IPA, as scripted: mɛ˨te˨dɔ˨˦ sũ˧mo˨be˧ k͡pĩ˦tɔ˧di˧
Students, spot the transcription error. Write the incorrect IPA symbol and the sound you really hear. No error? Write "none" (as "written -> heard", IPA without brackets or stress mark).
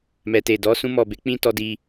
o˨ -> ɔ˨